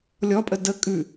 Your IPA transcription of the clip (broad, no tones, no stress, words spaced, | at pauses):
lʲɔpʼə də kʼʉ